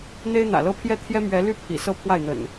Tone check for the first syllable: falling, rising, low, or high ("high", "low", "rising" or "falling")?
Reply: high